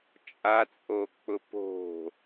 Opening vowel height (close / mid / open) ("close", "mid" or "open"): open